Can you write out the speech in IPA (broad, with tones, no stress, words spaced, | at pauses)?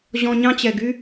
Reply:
ʑɔ̃˧ɲɑ̃˦t͡ɕɛ˨ ɡy˦